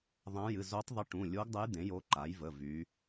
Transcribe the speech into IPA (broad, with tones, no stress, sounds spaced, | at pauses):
ðˤ ã˧˥ j ɨ˩˧˩ z o˧˥ tˤ ðˤ ɨ˧˥ ʈ ũ˩˧˩ lʲ o˧˥ ɡ dˤ ə˧˥ j d̪ ẽ˩˥ j o˧˥ ǃ a˩˥ j v ə˩˧˩ v y˩˧